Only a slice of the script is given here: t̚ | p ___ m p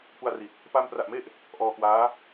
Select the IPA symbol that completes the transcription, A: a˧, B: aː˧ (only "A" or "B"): A